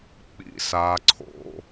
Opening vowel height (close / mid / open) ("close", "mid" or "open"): close